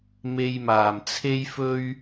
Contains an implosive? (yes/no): no